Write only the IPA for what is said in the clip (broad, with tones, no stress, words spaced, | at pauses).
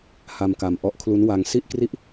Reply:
ha˧mka˧mʔɔ˦˥ʔkʰlu˦˥n wa˧ŋ si˥˩ʔkri˥˩ʔ